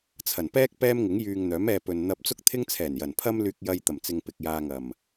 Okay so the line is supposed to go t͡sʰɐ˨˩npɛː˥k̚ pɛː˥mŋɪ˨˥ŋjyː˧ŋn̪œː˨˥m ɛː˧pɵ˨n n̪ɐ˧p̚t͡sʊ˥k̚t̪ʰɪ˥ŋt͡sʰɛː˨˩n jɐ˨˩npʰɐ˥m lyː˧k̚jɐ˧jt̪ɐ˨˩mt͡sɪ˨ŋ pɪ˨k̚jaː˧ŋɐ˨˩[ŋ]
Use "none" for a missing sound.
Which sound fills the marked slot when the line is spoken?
m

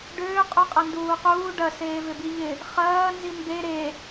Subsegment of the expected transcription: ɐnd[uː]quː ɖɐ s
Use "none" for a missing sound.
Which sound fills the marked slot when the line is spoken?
uː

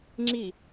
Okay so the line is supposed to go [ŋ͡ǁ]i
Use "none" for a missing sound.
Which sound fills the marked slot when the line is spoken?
ŋ͡ǁ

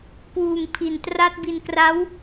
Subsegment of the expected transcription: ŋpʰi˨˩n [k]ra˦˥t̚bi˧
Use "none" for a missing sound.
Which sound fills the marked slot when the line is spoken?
t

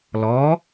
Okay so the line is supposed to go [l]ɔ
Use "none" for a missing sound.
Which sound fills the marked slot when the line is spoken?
l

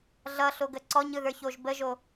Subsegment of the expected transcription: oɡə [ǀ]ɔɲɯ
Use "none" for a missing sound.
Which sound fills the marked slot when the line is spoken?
ǀ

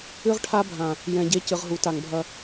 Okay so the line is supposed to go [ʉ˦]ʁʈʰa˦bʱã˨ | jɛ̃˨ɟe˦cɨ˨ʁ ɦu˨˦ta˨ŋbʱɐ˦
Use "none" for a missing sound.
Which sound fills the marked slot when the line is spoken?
ɨ˦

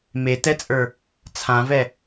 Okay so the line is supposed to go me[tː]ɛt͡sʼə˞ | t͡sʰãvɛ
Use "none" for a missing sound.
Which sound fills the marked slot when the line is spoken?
t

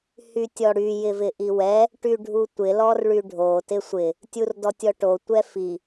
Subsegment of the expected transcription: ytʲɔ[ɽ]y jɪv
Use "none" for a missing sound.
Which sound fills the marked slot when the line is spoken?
ɽ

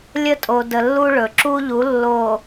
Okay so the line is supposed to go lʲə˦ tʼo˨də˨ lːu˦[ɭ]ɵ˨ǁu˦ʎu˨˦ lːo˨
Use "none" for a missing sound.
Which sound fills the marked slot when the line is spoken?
ɭ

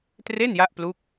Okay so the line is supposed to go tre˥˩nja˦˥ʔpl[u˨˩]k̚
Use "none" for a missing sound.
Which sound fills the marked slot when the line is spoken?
u˦˥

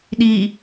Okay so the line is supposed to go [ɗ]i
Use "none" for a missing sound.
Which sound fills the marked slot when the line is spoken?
ɗ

